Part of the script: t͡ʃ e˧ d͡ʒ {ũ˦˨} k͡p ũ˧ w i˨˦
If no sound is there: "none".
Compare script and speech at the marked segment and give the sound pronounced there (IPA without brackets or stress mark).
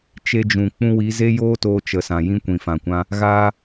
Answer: ũ˨